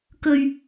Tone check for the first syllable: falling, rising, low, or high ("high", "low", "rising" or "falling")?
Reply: low